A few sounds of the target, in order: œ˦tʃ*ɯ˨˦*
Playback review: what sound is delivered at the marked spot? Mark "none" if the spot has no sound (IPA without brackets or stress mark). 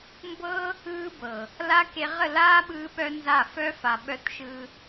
ɯ˦